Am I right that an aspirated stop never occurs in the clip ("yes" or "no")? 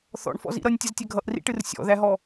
yes